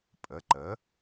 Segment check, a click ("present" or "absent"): present